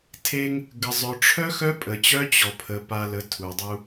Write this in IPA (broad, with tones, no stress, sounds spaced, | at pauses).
tʰ e˦ ŋ | ɡ ə˨ zˤ œ˨ ʈ͡ʂʰ œ˦ x œ˦ pʼ ə˨ t͡ɕ œ˦ t͡ɕ ɔ˨ pʰ ə˨ p a˨ l ə˨˦ tʰ u˨ dˤ u˦